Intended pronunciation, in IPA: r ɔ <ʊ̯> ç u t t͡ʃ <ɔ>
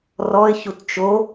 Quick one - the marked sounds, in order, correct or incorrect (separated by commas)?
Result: incorrect, incorrect